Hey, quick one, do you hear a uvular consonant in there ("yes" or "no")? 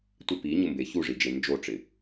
no